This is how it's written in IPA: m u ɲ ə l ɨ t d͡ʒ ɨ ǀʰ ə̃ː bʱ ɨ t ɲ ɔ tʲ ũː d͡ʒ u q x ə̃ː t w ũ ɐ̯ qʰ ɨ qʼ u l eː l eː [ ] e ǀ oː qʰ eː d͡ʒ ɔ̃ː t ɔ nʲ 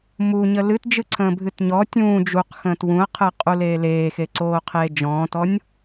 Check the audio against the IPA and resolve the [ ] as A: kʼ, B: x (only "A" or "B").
B